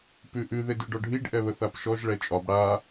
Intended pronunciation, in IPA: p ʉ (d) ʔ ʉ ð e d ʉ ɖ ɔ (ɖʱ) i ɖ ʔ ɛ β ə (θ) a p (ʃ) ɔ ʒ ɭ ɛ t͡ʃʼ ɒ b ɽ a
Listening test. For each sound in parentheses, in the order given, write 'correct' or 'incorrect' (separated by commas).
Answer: incorrect, correct, correct, correct